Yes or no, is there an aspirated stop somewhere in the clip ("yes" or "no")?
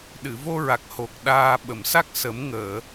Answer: no